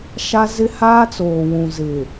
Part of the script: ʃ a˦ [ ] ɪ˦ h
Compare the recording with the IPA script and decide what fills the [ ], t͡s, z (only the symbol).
z